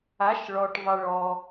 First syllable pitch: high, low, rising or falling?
rising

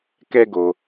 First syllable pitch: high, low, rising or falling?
high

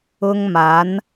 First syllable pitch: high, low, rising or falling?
high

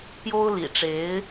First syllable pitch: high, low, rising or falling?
high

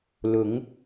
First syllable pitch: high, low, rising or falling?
rising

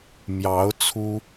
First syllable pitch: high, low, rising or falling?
rising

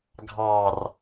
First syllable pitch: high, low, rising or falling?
low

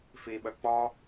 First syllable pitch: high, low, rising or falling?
low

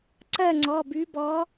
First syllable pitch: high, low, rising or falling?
falling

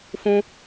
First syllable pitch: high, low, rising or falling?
high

